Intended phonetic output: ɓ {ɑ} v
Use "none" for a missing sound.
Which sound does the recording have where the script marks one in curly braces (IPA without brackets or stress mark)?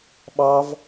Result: ɑ